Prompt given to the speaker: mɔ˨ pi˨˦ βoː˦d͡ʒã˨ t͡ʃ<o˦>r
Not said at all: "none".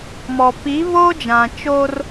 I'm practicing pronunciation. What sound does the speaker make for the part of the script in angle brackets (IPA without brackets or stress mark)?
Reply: o˦